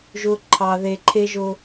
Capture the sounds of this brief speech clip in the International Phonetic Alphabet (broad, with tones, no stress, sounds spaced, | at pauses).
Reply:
ʒ ʊ˨ ǃʰ ɑ˨ ð e˨ ǃʰ e˦ ʒ ʊ˦